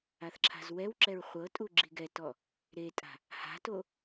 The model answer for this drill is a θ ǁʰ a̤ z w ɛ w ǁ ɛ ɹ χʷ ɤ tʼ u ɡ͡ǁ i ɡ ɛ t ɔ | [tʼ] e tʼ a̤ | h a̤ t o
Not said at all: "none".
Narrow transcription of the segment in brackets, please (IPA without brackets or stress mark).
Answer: ɾ